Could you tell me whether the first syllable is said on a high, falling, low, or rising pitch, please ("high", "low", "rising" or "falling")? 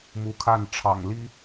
rising